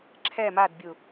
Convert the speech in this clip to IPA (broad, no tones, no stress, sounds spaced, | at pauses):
ǁʰ ɛ m a d bʲ u